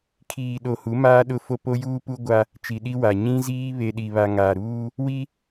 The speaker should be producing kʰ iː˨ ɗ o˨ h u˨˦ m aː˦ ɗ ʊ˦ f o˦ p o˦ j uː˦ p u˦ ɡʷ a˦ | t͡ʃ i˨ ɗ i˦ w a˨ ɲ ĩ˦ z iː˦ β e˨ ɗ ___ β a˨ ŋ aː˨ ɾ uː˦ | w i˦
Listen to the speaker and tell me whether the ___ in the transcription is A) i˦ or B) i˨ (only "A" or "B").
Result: B